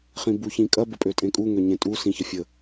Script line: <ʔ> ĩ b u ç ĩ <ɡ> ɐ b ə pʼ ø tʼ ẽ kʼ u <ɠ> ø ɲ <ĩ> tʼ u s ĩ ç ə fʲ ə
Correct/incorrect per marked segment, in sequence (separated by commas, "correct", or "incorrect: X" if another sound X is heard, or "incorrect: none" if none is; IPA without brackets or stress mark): incorrect: χ, incorrect: kʼ, incorrect: ŋ, incorrect: ẽ